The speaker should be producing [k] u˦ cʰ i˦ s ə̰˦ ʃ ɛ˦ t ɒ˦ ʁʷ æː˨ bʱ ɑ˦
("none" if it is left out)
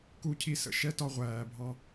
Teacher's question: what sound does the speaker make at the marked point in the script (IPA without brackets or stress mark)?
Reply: k